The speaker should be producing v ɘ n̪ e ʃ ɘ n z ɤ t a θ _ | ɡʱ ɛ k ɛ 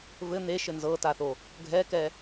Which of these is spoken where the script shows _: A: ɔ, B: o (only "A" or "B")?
B